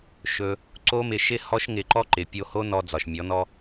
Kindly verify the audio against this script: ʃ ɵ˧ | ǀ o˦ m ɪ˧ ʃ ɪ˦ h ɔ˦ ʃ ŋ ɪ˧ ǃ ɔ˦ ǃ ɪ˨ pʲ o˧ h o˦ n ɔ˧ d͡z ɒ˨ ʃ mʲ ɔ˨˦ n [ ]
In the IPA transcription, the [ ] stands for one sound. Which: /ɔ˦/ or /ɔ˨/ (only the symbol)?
ɔ˦